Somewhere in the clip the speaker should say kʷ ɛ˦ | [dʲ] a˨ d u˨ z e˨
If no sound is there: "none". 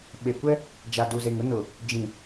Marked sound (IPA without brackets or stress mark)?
d͡ʒ